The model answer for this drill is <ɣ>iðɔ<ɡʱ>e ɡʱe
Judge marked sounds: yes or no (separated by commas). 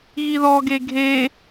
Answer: yes, no